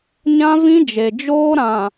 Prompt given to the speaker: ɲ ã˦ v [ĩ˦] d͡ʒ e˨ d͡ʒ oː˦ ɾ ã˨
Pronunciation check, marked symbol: correct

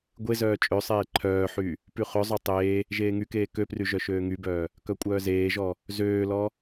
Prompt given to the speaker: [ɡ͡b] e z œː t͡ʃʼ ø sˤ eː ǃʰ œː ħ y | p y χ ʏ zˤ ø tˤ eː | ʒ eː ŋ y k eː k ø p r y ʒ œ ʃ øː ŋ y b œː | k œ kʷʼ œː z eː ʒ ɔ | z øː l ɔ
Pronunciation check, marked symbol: incorrect: ɡʷ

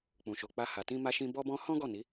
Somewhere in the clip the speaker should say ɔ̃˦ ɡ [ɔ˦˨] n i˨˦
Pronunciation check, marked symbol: correct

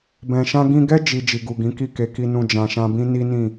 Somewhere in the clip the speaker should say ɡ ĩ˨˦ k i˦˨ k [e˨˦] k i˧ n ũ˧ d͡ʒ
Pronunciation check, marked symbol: correct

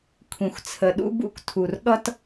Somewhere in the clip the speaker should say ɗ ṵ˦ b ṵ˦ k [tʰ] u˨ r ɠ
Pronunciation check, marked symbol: correct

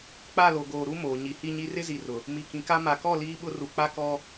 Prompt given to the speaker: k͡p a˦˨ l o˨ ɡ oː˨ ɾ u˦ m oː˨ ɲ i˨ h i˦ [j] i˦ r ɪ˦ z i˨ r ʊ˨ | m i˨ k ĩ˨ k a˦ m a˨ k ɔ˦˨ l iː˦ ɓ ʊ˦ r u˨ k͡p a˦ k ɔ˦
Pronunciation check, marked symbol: incorrect: ɲ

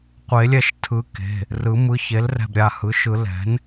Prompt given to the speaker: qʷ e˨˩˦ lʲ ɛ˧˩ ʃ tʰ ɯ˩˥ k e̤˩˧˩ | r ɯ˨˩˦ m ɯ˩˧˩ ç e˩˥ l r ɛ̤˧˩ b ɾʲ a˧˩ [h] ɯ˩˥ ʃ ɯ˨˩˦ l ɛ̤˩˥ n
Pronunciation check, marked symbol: correct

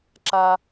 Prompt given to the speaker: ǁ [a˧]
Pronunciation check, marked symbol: correct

